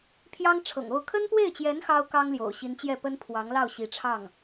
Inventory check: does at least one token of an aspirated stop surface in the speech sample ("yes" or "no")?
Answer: yes